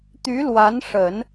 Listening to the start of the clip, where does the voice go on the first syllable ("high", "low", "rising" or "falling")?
rising